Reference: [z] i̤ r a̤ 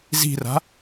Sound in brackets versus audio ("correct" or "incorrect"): correct